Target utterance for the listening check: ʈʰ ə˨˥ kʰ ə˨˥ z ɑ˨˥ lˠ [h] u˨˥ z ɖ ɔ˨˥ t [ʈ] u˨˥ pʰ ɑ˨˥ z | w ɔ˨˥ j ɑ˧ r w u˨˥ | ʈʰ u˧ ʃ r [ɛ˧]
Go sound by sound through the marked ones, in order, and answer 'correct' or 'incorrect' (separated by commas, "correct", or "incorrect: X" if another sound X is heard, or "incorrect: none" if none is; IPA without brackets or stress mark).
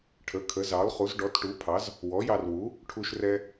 incorrect: χ, correct, correct